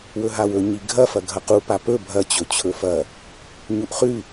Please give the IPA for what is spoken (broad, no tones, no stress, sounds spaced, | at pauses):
w ɵ ɦ a w ɵ ɲ i ɡʱ ɐ f ɐ ɡʱ ɐ q u p a p ɵ bʱ ɐ t͡ɕ ɵ t͡ɕʰ ɵ f ɐ | ɲ u ʔ χ ʉ